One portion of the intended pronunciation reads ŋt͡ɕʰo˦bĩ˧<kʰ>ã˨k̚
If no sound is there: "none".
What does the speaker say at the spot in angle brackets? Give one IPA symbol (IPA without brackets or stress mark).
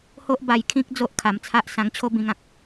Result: ŋ